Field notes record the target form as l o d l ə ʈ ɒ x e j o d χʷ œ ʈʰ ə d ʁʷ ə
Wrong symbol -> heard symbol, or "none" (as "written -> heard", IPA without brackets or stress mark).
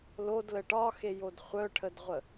none